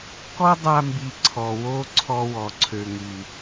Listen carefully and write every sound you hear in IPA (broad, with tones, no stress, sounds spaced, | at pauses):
k ɔ˦ dˤ a˧ m b i˨ ǀʰ ɔ˨ w o˦ ǀʰ ɔ˧ w ɔ˨ ǀʰ ø˨ ŋ y˨